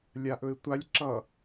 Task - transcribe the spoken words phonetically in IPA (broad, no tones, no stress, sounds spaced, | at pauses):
lʲ a ʔ ɵ ɪ̯ tʷ a lʲ ǁ ʌ